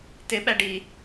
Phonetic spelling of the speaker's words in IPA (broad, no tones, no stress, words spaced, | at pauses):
t̪ɪ ɓæɖi